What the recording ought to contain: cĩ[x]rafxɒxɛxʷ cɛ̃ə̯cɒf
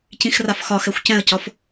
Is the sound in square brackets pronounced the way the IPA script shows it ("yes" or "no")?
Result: yes